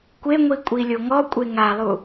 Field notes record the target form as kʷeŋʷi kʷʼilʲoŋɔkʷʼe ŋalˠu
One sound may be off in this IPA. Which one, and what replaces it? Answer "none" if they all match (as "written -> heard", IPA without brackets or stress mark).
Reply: none